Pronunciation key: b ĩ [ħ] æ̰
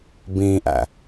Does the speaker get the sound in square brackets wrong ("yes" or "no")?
yes